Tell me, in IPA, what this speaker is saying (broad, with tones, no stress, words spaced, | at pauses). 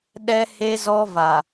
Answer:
ɗɛ˦ he˦zɔ˦va˨